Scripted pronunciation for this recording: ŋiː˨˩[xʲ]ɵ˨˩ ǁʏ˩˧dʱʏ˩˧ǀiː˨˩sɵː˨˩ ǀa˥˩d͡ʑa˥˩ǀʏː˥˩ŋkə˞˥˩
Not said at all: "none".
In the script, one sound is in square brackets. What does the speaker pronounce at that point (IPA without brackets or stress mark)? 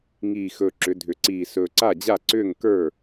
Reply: x